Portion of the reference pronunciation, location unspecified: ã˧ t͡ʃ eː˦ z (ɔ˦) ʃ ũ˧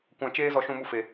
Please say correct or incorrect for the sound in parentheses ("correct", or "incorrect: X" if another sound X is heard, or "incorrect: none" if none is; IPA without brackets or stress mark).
incorrect: ɔ˧